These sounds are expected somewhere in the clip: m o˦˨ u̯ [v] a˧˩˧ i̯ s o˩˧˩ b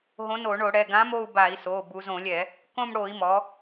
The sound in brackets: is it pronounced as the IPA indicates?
no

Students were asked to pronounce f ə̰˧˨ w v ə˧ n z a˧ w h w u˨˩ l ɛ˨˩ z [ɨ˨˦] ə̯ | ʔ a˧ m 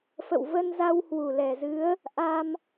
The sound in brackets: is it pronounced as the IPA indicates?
yes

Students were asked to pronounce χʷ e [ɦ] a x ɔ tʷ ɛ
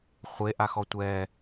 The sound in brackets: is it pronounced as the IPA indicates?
no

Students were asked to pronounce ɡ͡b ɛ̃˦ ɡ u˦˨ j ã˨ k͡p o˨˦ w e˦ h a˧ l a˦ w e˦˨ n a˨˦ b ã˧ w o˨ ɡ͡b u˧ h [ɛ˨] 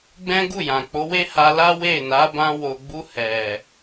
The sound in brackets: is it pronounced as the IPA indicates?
yes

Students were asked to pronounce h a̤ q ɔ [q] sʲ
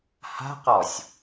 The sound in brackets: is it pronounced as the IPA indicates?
no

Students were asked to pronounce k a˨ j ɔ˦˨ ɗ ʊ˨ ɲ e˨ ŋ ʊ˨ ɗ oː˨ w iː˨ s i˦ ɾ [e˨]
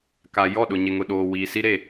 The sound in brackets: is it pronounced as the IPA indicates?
no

